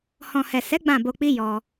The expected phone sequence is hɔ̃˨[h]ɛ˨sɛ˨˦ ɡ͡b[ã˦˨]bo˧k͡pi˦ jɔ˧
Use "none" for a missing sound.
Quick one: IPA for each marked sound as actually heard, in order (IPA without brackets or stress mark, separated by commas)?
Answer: h, ã˦˨